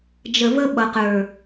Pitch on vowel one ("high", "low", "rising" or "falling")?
low